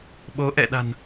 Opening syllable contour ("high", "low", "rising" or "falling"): rising